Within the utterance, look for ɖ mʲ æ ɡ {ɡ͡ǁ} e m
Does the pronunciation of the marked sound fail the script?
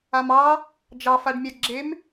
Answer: no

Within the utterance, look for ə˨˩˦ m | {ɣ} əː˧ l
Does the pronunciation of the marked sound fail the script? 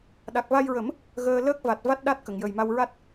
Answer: no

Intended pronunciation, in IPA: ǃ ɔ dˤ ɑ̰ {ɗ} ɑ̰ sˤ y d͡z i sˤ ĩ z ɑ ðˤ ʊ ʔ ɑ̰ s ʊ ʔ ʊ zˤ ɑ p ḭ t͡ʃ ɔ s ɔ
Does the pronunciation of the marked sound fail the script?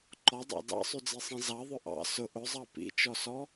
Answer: yes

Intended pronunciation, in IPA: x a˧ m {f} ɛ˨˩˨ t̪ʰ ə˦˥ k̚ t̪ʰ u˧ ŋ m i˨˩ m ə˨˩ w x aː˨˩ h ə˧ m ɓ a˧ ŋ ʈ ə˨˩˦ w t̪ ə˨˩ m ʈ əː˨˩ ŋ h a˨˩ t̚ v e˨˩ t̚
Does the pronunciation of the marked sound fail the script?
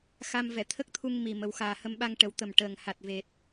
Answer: yes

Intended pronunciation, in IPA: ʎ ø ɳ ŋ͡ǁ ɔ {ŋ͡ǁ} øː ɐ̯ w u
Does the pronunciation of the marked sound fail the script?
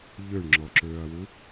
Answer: yes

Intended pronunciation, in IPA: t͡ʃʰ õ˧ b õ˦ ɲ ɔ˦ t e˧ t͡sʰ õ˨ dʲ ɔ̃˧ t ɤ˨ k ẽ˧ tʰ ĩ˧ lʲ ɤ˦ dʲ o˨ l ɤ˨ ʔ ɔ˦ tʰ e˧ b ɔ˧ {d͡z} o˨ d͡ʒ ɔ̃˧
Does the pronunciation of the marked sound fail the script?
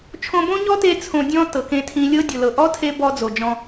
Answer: no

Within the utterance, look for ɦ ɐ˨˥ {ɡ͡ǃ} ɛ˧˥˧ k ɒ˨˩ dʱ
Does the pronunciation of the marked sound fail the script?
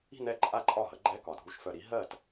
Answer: no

